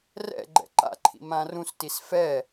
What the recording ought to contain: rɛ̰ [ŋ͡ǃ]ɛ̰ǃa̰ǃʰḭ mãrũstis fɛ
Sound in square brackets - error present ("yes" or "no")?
yes